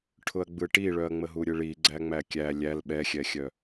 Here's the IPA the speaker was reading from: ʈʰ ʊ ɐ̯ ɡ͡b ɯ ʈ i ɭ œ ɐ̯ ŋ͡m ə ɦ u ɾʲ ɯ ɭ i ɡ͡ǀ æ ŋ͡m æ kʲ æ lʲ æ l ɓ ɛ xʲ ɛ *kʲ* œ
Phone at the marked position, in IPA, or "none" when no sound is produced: xʲ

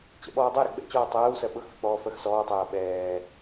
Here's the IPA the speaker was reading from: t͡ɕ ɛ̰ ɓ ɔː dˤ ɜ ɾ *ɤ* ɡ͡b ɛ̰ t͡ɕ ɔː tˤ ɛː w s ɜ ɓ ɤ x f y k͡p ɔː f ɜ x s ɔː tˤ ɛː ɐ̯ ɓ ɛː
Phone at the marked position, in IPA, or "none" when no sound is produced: ɤ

